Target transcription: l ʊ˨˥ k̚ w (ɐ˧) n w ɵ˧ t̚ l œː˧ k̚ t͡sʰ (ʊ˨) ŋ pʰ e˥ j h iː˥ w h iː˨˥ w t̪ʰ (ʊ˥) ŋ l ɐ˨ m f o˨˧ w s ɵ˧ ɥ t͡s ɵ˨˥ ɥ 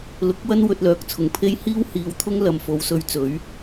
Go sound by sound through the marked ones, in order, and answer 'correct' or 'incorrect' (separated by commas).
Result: incorrect, correct, correct